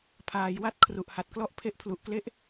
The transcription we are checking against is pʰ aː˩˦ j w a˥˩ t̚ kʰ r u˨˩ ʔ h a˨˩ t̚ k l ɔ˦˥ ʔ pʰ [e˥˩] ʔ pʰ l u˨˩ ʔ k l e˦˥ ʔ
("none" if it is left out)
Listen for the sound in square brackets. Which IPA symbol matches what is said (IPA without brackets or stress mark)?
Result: e˦˥